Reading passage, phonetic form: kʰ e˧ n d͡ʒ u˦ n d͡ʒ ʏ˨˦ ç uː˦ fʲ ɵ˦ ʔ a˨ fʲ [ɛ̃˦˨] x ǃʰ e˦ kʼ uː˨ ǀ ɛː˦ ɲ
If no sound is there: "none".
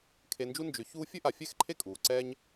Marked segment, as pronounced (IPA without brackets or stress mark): ɛ˦˨